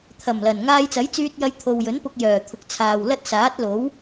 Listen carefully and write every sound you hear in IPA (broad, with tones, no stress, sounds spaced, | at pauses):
t̪ʰ ɐ˨˩ m l ɐ˨˩ n ŋ aː˧ j t͡s ɐ˨˥ j t͡s yː˧ t̚ j ɐ˧ j t̪ʰ o˨ w j ɵ˨˥ n p ʊ˧ k̚ j œː˨˩ t̪ʰ ʊ˨ k̚ t͡sʰ aː˨ w l ɐ˥ t̚ s aː˨˥ t̚ l o˨˥ w